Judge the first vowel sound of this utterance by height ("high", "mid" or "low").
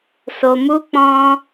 mid